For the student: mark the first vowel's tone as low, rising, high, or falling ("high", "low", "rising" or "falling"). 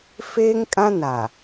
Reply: high